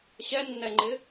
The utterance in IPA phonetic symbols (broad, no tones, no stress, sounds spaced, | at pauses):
ɕ ɛ nː ɛ ŋ͡ǃ ɪ